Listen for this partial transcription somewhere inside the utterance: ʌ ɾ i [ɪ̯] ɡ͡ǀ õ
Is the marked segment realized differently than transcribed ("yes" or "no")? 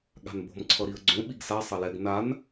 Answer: yes